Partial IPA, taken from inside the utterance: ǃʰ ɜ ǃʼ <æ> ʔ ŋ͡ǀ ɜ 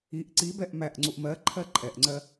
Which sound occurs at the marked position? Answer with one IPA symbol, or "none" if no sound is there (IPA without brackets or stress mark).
ɛ